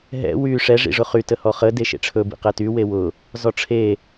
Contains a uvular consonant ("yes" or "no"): yes